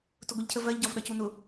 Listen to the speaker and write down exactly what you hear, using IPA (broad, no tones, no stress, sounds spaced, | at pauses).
t ʊ ɡʷ i ʎ cʰ ə v ɜ ʎ ɟ ɒ v ɗ ʌ c u n ʊ